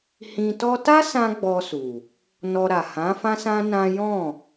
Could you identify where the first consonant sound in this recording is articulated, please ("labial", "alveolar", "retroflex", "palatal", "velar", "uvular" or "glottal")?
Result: glottal